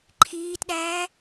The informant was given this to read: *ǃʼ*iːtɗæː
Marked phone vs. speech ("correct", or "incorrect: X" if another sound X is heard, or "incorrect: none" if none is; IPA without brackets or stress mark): incorrect: ǃʰ